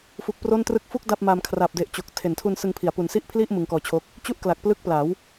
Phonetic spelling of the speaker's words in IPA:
fu˨˩k̚ pro˥˩ntrɯ˥˩k̚ fu˥˩k̚ da˥˩p̚ ma˧m kʰra˨˩p̚de˨˩ʔ t͡ɕo˨˩k̚tʰe˨˩ntʰu˧n sɯ˧ŋpʰi˩˦a̯pu˨˩n si˥˩ʔpʰli˥˩ʔ mɯ˧ŋkɔː˧t͡ɕʰo˦˥k̚ | t͡ɕu˥˩ʔkla˨˩k̚ plɯ˦˥k̚pla˩˦w

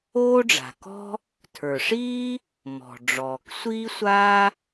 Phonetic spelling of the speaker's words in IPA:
oː˥ɖ͡ʐa̤˩kɔ̤˥ | tʰə˞˩ʂiː˥ | mɔ̤˩ɖ͡ʐɔː˩k sʷiː˥sʷa˥

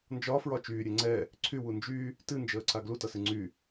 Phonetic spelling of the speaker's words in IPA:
nd͡ʒɒfɹɒ t͡ʃyːɾʲe ŋ͡ǀɛ | ǀʰywu nd͡ʒy | tɨnd͡ʒəːǀa ɡlutʌsɨ ŋ͡ǀy

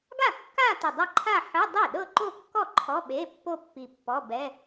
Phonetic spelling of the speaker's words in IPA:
ɡa˥˩kːa˥˧ ti˧˩dˤɛ˥˧ ǃʰa˥˧ħɯ˧˥˧ dˤe˥˩ɗɤ˥˧ǃo˥˧kːɔ˥˩ ǃʰɔ˧˥˧ɓe˧˥˧ pːo˥˧pːi˧˩ pːɔ˧˥˧bɛ˧˥˧

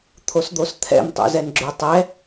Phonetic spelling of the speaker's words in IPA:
t̪ʰosd̪ost̪ʰɛ̰m tˤo̰zɛnɡ͡ǁøtˤɛ

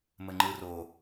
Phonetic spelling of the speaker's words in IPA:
məŋ͡ǃɯro

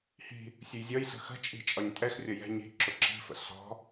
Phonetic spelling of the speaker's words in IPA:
hi̤ | sʲujzʲɔjɬə̤ xə̤t͡ʃʼi̤ t͡ʃʼɒɲtʼɛxrʲʌ jɛ̤ ɲi̤ ǁʊǁi̤fə̰ ɬɔ̤

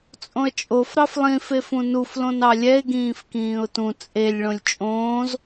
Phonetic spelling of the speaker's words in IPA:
t͡sʼõə̯t͡ʃʼofɾɑf lˠĩfefũ nuflõn ɑlʲɛɪ̯ɡĩːf kĩːʊ̯tũ t͡sʼelʲ ɭõlʲt͡ʃʼõːz

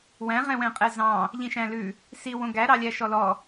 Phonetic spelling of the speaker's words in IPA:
wæ̃ʁɛ̃wɛ̃ qʼɛzɑ̃ | ʎĩʃæ̃lʉ | siwõ ɡæɾɑlʲæ ʃɔlɔ

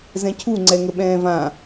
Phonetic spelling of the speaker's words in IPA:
zɛ̃cʰu ŋ͡ǀɛŋəɓɛ̃ːvã

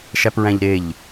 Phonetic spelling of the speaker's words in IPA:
ʃæpɹæ̃ʎɾeʎ

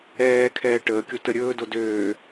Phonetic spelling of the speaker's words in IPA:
ɛːkʰɛː ʈəːkʲo təɾʲɵːdo døː

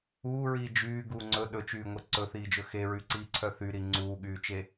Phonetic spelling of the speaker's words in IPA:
uːɹiː d͡ʒyːɡuː ŋ͡ǀɵ ɗɵt͡ʃyːŋʷe ǀɵθiːd͡ʒɵ xeɹyǀiːǀʰœ θyɾi ŋ͡ǀuːɠyːt͡ʃe

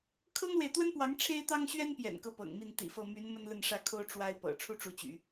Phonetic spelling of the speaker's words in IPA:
kʰɤ˥ŋlwe˨ɪ̯t̪wə˥npwɑ˧˥ŋ ʈ͡ʂʰe˥ɪ̯t̪ɑ˥ŋɕɥɛ˥npjɛ̰˨˩n kɤ˥˩pɤ̰˨˩ŋmi˥˩n t̪ḭ˨˩fɤ˥˩ my˧˥n mə˥nlə˥˧nʂä˥˩kʰo˥ʊ̯ ʈ͡ʂwa˥ɪ̯pɤ̰˨˩ ʈ͡ʂʰu˥ʈ͡ʂu˧˥t͡ɕy̰˨˩˦

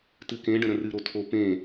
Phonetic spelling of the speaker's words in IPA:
tɨkẽɖə̃ ɾə̃rɨ ɾotʰo pẽ

